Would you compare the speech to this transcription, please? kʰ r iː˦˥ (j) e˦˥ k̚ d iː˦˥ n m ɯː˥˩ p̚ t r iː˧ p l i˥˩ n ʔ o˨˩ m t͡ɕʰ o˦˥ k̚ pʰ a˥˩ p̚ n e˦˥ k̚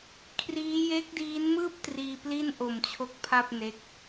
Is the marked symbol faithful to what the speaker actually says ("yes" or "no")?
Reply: yes